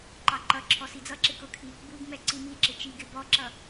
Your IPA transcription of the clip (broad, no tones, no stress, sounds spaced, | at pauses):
ǃ ɑ ǃ ʌ ǁʰ ɔ s i d͡z ʌ ǁ ɪ k ʊ kʰ i | b u ɡ m ɛ ǀ i m i ǁ ɪ t͡ʃ i ɡ ɪ b ɔ ǁ ʌ